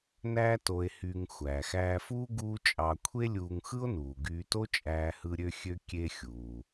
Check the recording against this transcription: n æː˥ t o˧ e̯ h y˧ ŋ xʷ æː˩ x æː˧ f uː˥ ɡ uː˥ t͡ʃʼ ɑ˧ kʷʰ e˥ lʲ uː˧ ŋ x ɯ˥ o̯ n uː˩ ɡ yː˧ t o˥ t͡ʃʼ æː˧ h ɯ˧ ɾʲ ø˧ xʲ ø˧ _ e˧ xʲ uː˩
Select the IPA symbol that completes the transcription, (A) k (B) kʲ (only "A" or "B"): B